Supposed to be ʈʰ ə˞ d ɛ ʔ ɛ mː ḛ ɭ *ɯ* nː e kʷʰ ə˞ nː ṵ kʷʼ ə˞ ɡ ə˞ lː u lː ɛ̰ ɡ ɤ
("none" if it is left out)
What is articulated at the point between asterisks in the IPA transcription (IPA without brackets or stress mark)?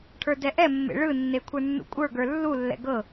ɯ